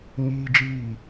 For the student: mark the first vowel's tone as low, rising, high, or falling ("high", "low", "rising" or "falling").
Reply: low